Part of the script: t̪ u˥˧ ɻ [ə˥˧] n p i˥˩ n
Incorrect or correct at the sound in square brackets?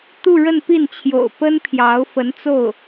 correct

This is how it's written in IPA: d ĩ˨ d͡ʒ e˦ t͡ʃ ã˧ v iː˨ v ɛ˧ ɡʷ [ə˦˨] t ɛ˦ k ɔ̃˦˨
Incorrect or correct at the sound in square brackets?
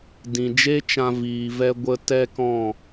incorrect: ə˧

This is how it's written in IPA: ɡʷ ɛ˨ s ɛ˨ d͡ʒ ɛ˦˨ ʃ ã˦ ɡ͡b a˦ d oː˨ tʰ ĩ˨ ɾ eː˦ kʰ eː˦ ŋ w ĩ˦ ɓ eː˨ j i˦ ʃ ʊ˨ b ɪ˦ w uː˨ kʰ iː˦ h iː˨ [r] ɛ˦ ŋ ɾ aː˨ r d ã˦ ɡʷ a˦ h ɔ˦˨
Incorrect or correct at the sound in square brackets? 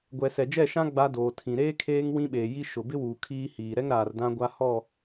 incorrect: ɾ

